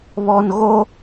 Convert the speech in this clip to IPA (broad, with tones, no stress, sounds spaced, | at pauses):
β ɔ˨ n ɣ o˦